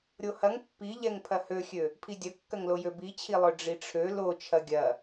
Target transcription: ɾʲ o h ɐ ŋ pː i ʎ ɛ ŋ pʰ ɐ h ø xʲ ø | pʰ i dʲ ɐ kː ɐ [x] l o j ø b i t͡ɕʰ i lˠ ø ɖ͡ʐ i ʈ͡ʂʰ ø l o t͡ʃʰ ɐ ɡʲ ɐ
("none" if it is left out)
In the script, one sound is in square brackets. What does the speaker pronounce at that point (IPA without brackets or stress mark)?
ŋ